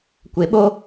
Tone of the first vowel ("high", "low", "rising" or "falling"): low